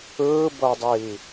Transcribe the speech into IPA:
ɯː b ɤ dˤ iː

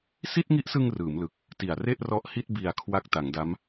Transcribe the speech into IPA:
s i˥˩ t̚ ŋ i˦˥ ʔ s ɯ˧ ŋ r ɯː˩˦ m l ɯ˨˩ k̚ | t i˨˩ a̯ r e˥˩ ʔ r ɔ˦˥ ʔ h i˥˩ t̚ b i˨˩ a̯ kʰ w a˦˥ k̚ t a˩˦ ŋ d a˦˥ m

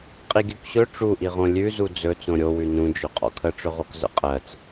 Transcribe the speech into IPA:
qʼ i ɡʲ ʉ k ɕ ɵ ʈ͡ʂ u ʔ i ʁ õ lʲ ʉ z u d͡z ɵ t͡s õ ɾʲ o w ʉ n ũ d͡ʒ ɵ qʼ ɔ̰ kʰ ə ʈ͡ʂ ɵ ʁ o k z ə̰ qʼ ɜ t͡s

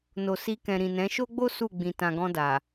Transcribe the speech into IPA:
n o˨ s i˧ k ɛ̃˨ ɾ ĩ˨ n ɛ̃˨˦ ʃ o˦ ɡ͡b o˦ s u˦˨ ɡ͡b ĩ˨ t ã˨ ɡ ɔ̃˧ d a˨

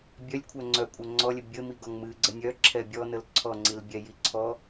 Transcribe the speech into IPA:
bʲ œ lʲ kʷʰ œ ŋ͡ǀ œ kʷʼ œ ŋ͡ǀ ɔ lʲ ə bʲ ə m i ɡ ɔ ŋ m ɨ ɡ͡ǀ ə nʲ œ ǁʰ ɛ bʲ ɔ n ə l ǀʰ ɔ ŋ͡ǀ i l bʲ ɛ j i ǀʰ ɔ

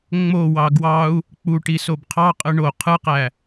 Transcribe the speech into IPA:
ŋ͡m o w ɑ ɡ w ɑ u̯ | k͡p u ʈ i s o b qʰ ɑ qʼ ɯ ɳ o qʰ ɯ q æ

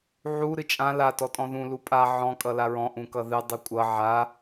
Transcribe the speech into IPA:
ʕ u ɾ ɨ t͡ʃʼ ã l a t ɔ tʼ ɔ̃ ð ũ l u pʼ a ʕ ɔ̃ kʼ ʌ l a ɹ ɔ̃ ʔ ũ k ʌ ð ɨ dˤ ʌ kʷʼ ʌ ʕ a

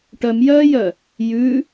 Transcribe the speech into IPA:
ʈ œ m j œː j œ | j ʉ

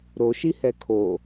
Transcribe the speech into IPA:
ɾ o ʃ i h ɛ kʰ o

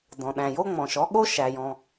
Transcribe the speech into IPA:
d ɔ̃˩ ɗ æ̃˩ j o˥ ŋ͡m ɔ̃˩ ʃ ɔ˥ ɠ o˥ ʃ æ˩ j ɔ̃˩

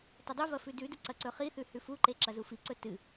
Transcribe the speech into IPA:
t ɐ dˤ u v ɐ f ʉ d ʉ d ɨ ǀ ɐ ǀ ɵ χ i θ ʉ h ʉ f u ǃ e ǁ ɐ z u f i ǀ ɵ t ɨ

